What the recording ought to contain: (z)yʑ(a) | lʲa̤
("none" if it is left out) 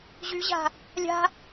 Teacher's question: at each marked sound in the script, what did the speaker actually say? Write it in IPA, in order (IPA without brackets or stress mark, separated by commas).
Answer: ʑ, a̤